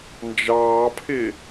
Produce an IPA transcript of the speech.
n d͡ʒ ɑː pʰ ɪ

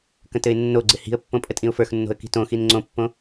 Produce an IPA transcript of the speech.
k ə̃ t ɘ ɪ̯ nː o ɡ͡ǀ ɪ h i̤ ə̯ pː õ pʼ ə tʼ ĩ ʊ̯ f ə˞ x nː o̤ ə̯ k i̤ t õ x i n ŋ͡ǀ õ pː õ

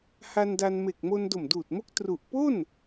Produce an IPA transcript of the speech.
h a˧ n d a˧ n m e˨˩ k̚ m o˧ n d o˨˩ m d uː˨˩ t̚ m o˦˥ k̚ t r u˨˩ ʔ p o˥˩ n

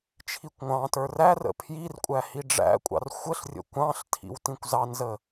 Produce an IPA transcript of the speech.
t͡ʃʰ i kʷ ŋʷ ɑ̃ t ə˞ r æ r ə̰ pʰ j i r kʷʼ æ h i ɖ͡ʐ æ̰ kʷʼ ɑ̰ r xʷ ə ɬ rʲ ə̰ kʷ ɑ̃ ɬ tʰ ḭ w t ĩ kʷ z ɑ n z ə

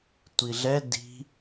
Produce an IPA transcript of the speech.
tʷ i ɮ ɛ d i̤

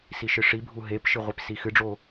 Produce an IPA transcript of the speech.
s i ʃ ɨ ʂ i bʱ u ɦ e p ʃ ɨ ʁʷ i p s i x ɨ ɖ͡ʐ o

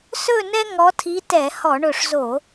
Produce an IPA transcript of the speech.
s ɵ˥˧ n ɛ˥ ŋ ɔ˧˥ tʰ i˧˥ t ɛ˧˩˧ h ɔ˧˩˧ ɳ ɵ˧˩ ʂ z o˧˩˧

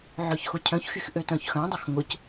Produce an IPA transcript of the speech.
ʕ œ ç x ʊ cʰ œ̃ ç x y x ʔ ø t œ̃ ç x œ̃ dˤ ʊ x ŋ ʊ c

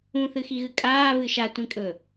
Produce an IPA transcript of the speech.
ũ θ ɨ x i ɣ ɨ kʼ aː β ɨ ʃ a tʷ ĩ kʼ ɵ

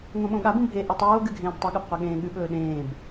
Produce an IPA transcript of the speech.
ŋ õ ɓ õ ɠ a b ũ bʱ e ʔ ʉ tˤ oː ɡ ɨ ɡʱ ẽː b tˤ ɐ ɠ ɐ b qʷ ɐ ɠ ẽː ɠ ʉ ɓ ɵː ɗ ẽː b

